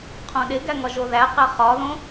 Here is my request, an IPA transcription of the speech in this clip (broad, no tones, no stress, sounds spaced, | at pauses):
qʰ õ ɗ e ɡ æ ŋ ɒ ʒ o ð æ q æ χ ɒ ð õ